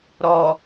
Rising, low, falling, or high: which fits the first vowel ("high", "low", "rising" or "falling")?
low